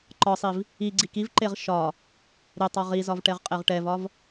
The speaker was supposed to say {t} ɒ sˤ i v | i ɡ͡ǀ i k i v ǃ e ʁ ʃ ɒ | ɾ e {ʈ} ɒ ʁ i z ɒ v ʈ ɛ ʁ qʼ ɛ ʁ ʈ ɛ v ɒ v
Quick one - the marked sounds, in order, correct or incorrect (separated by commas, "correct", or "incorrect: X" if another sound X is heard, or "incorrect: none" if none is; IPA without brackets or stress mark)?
incorrect: ǃ, incorrect: tˤ